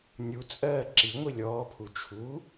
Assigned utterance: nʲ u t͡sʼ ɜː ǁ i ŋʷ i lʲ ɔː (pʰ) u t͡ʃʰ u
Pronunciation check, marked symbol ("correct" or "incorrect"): correct